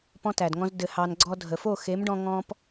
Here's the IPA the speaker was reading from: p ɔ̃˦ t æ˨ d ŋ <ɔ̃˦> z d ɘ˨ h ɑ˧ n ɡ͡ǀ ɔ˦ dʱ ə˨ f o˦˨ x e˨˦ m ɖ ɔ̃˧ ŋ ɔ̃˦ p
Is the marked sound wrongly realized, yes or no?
no